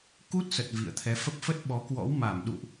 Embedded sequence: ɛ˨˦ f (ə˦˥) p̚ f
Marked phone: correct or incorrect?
correct